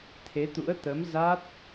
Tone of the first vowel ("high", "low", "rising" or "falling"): rising